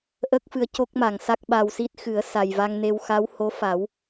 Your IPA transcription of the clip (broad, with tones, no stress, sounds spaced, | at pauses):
ʔ ə˦˥ k̚ f ɨ˧ ə̯ c o˦˥ k̚ m a˨˩˨ ŋ s a˦˥ k̚ ɓ a˧ w s i˦˥ t̚ x ɨ˨˩˦ ə̯ s a˨˩ j v a˧ ŋ n e˧ w x a˧˥ w h o˧˥ f a˨˩˦ w